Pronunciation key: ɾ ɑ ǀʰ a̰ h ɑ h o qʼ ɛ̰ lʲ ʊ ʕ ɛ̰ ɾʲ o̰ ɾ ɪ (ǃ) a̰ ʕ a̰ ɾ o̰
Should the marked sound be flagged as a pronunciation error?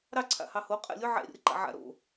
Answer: no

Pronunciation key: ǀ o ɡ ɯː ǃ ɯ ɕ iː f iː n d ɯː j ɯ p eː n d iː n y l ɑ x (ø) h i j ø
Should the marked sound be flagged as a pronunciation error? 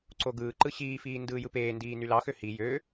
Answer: no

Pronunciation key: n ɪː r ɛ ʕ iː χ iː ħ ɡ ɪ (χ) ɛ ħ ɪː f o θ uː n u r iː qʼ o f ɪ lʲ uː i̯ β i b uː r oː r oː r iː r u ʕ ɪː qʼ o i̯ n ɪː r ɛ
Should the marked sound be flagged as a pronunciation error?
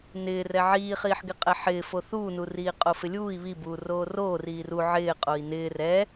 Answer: yes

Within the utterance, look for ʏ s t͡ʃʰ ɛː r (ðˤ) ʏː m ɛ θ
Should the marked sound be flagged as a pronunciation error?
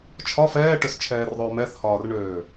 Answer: no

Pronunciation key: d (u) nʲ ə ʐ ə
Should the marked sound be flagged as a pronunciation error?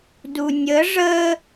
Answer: no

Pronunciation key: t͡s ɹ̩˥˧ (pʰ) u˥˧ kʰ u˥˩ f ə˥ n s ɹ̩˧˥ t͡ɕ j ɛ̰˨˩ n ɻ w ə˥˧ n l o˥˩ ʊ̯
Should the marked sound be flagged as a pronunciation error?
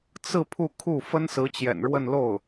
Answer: no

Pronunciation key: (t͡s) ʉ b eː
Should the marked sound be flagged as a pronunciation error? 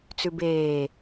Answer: no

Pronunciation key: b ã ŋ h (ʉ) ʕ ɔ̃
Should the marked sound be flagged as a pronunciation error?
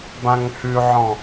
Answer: no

